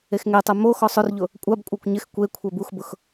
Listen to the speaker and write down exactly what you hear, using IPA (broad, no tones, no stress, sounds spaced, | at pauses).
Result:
e x ŋ e tˤ ɛ m o x ɔ sˤ ʊ r ʎ ʊ | kʷʼ a b kʷʼ a kʷ ɲ ɪ x kʷ e kʷʰ ɛ b u x b ʊ x